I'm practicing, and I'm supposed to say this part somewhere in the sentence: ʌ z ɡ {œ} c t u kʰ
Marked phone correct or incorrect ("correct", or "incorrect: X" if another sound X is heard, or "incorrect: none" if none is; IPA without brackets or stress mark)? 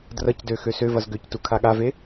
incorrect: ø